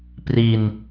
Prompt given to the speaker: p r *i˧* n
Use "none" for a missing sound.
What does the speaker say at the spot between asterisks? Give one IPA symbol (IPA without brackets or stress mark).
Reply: i˧